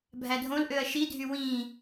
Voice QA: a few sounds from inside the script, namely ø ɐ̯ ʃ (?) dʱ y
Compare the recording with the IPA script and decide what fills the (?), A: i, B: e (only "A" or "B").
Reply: A